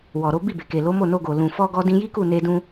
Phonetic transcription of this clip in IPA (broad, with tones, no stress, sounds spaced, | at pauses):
w ɔ˨ ɾ o˨˦ b i˦˨ b e˨ k e˨ l o˨˦ m o˦˨ n o˧ ɡ o˨ l ũ˨ f ɔ˧ ɡ ɔ˧ d ĩ˧ j i˦ k u˦˨ n e˧ d ũ˧